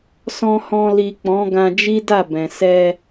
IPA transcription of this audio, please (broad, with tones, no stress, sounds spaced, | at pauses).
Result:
s ɔ̃˧ h ɔ̃˧ l i˨ k͡p ɔ̃˨˦ ɡ ã˧ d͡ʒ i˦ d a˦˨ b ɛ̃˨ s ɛ˧